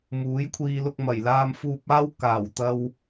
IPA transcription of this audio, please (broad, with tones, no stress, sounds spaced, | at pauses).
m uː˨˥ j kʷʰ iː˧ l ʊ˧ k̚ m ɐ˨˩ j l aː˧ m f uː˧ p̚ aː˥ w k aː˨˩ w t̪ ɐ˧ w